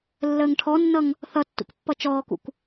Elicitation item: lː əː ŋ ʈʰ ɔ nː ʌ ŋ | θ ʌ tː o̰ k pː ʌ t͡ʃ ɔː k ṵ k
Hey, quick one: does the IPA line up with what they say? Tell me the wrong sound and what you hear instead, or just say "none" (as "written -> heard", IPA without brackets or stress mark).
o̰ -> ṵ